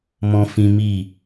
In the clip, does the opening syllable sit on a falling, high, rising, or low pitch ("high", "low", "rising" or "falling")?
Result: high